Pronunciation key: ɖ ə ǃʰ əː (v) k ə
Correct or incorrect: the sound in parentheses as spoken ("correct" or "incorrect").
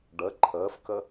incorrect